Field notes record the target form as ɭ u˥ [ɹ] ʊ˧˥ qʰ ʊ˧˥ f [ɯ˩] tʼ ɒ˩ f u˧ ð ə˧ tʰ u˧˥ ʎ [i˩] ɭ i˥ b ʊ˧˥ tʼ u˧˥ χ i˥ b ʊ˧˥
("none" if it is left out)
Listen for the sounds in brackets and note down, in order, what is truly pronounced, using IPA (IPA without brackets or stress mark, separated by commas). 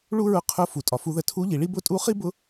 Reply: ɹ, u˩, i˩